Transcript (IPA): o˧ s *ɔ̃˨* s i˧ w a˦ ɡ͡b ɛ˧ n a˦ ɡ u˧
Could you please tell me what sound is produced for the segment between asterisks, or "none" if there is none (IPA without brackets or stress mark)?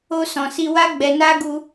ɔ̃˨